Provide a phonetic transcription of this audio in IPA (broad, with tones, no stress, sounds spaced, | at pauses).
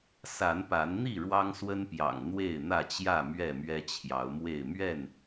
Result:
s a˨˦ n p a˨˦ n n̪ i˥˨ ɻ w ɑ˦ ŋ s w ə˦ n p j ɑ̰˨˩ ŋ n̪ w e˥˨ ɪ̯ n̪ ä˥˨ t͡ɕ j ä˥˨ m ɥ ɛ˥˨ m ɥ ɛ˦ t͡ɕʰ j ɑ˨˦ ʊ̯ m w e˥˨ ɪ̯ m ɥ ɛ˥˨ n